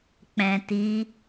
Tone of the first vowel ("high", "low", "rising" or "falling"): low